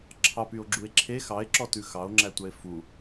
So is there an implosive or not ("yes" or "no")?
no